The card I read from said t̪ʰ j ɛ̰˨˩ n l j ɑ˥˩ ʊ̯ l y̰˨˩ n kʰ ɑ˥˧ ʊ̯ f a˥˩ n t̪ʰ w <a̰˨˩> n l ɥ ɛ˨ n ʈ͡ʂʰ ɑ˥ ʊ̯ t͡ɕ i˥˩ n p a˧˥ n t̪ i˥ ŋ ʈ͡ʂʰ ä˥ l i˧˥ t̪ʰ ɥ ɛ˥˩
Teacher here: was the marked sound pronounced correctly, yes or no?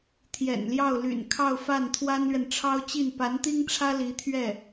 no